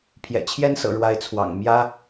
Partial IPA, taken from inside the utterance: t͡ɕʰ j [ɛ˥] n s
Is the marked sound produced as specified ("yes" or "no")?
yes